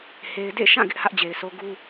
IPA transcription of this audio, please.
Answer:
h e˦ ɪ̯ d ḛ˦˨ ʃ ã˦˨ ɡ ɪ˦ ʔ h ä˦ ʔ d͡ʑ e˨ ɪ̯ s o˦ ɡ u˦

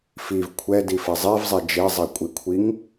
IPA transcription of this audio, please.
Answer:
f i v kʷʰ ɛ d i f e zˤ i v zˤ e d͡ʒ e zˤ i kʷʼ i kʷʰ i ŋ

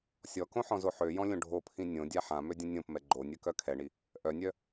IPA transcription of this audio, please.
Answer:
sʲ ɔ k õ ħ ɔ̃ z o ħ ø j ɔ̃ lʲ õ ɖʱ o pʰ ĩ nʲ õ dʲ a ħ ã m ø dʲ ə̃ nʲ õ p m ɛ ɡ͡ǃ o nʲ œ k œ kʰ ɛ ɳ i | ʔ œ nʲ œ

